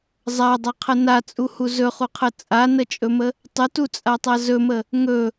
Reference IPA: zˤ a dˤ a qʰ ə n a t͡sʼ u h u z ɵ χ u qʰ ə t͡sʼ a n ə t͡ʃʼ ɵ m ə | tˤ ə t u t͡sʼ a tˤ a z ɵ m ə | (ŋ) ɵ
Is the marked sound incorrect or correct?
correct